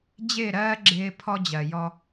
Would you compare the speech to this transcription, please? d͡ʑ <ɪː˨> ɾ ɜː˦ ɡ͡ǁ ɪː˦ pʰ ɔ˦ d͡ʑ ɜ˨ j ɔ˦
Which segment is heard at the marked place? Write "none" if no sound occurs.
ɪː˦˨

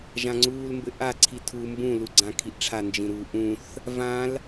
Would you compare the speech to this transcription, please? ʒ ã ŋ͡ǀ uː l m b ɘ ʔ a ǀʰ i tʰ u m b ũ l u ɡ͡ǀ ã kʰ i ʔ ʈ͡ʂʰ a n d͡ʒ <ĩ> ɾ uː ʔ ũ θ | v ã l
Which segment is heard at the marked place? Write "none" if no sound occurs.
ĩ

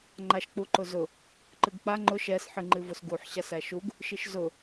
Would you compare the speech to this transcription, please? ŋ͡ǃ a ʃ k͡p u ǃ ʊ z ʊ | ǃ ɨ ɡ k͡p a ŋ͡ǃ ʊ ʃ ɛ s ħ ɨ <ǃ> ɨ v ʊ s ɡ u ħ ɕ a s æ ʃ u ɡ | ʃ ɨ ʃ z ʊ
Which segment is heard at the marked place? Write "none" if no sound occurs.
ŋ͡ǃ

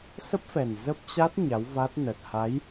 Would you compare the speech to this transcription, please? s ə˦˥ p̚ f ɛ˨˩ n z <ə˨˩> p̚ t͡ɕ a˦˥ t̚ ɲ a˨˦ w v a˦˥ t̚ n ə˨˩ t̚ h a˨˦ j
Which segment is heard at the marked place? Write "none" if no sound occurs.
ə˦˥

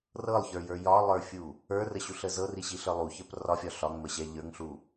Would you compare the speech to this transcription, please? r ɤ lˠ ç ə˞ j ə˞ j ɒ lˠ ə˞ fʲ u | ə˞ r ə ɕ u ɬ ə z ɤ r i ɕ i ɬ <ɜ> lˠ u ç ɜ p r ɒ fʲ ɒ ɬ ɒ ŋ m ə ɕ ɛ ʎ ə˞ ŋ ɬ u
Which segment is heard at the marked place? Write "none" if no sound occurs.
ə˞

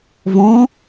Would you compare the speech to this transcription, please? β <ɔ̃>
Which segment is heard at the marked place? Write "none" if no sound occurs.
ɔ̃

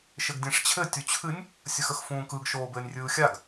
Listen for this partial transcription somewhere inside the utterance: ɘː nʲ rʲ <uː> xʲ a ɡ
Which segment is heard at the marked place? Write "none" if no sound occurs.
ɯː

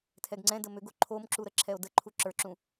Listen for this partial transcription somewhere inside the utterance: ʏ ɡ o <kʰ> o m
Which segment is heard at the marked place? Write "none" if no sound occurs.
ǃʰ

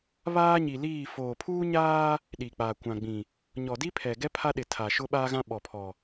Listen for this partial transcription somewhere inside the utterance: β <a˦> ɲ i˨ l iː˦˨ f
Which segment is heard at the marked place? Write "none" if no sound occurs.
aː˦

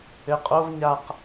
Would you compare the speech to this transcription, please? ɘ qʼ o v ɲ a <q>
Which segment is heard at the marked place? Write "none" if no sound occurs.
q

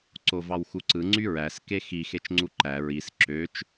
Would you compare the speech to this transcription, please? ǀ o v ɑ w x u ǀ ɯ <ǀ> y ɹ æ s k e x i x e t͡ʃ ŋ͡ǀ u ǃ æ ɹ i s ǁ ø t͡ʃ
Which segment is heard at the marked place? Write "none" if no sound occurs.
ŋ͡ǀ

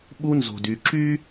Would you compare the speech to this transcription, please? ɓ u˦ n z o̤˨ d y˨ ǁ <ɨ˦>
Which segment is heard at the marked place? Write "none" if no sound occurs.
y˦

